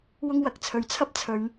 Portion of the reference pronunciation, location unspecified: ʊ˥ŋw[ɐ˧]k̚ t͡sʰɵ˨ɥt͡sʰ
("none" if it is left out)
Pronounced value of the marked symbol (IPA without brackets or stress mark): ɐ˨˥